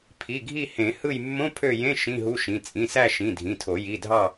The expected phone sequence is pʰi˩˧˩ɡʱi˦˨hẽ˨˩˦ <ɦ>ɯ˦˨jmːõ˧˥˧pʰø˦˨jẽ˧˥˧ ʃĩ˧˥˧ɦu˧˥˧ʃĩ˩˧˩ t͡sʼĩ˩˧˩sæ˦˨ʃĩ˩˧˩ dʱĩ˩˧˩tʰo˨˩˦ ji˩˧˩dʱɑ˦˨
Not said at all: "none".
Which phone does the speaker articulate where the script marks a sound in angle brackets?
h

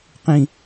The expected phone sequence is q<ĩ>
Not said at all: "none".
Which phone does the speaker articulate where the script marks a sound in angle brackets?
ĩ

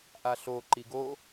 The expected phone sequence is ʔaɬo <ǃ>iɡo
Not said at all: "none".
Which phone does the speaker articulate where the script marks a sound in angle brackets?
ǃ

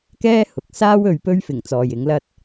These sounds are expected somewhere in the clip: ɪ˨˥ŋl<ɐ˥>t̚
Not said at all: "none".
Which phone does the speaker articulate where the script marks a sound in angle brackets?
ɐ˥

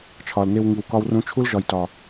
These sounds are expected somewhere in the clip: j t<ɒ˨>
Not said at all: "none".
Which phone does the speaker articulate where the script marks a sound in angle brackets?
ɒ˨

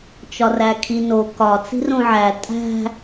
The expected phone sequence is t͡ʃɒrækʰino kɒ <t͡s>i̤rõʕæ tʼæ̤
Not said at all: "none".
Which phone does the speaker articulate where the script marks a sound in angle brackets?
t͡s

